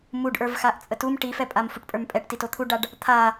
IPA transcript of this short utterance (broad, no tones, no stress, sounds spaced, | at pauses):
m u ɖ ʔ ə˞ v x a ʔ t͡sʼ ə t u m ʈ i f ɛ pʼ a m f u ʈ pʼ ə˞ m pʼ ɛ ʈ t i t o t̪ʰ u ɖ a ɖ | t̪ʰ a